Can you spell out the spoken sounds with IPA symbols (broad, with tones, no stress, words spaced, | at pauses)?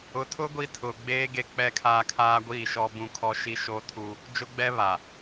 ʊ˨˦tʰʊ˦ ɡʷi˦tʰʊ˨ ɡ͡beː˦ ɡe˦k͡pɛ˦kʰaː˦ kʰaː˦ɡʷiː˦˨ʃɔ˦bũ˦ kʰɔ˦ʃi˦ ʃoː˦tʰuː˦ | d͡ʒʊ˦ɡ͡bɛ˦ βa˨